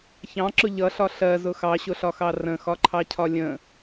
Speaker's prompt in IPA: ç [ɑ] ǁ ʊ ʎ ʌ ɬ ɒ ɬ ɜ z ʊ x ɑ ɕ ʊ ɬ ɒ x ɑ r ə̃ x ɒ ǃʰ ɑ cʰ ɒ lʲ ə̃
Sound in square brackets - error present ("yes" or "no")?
yes